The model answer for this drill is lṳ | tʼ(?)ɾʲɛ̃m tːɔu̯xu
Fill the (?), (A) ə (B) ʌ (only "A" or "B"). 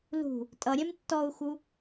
B